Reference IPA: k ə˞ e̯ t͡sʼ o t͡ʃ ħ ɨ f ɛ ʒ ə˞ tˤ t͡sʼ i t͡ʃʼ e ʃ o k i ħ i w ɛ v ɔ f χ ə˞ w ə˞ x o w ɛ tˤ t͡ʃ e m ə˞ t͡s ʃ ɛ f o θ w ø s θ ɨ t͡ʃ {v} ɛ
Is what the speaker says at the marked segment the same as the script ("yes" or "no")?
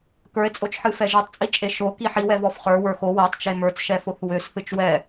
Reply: no